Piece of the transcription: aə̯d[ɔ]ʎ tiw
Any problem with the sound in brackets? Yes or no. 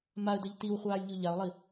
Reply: yes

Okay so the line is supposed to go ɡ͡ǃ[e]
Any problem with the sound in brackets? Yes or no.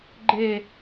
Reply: no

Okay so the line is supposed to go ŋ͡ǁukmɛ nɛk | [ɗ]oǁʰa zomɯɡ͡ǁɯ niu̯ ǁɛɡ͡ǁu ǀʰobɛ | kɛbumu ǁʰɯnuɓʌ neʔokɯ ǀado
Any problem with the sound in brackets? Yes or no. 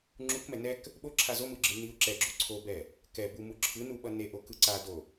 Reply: yes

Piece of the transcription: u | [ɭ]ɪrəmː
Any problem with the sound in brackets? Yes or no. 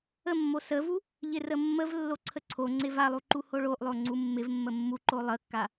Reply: yes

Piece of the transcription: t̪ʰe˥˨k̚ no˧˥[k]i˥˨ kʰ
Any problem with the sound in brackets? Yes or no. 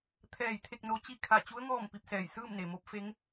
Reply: yes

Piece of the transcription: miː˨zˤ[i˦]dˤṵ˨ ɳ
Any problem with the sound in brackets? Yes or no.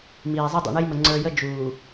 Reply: no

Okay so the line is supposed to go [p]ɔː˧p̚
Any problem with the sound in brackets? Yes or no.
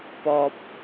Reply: no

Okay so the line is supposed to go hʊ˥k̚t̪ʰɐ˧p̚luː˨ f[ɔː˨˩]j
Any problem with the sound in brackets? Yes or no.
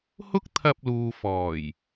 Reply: no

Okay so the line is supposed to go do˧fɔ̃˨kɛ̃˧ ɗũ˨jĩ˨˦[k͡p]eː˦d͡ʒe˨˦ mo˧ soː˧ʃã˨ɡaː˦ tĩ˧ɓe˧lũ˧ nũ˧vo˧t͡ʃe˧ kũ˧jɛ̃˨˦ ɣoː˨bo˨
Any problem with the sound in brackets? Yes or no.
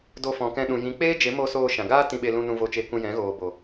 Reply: no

